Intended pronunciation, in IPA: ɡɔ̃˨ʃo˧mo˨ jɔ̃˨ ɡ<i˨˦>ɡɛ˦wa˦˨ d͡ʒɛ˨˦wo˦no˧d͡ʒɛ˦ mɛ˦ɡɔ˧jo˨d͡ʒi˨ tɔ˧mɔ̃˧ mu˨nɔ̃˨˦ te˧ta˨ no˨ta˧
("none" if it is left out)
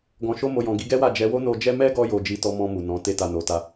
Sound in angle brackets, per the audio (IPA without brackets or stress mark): i˨˦